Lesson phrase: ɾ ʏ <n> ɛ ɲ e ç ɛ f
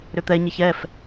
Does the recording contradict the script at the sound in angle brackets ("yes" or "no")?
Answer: yes